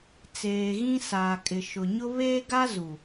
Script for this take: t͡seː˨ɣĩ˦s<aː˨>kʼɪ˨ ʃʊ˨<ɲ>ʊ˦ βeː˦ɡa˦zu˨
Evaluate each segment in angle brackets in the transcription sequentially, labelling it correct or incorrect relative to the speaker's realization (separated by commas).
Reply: correct, correct